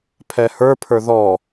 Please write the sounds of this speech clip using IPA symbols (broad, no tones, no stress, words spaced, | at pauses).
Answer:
pʰɛhə˞ pʰə˞ðɔ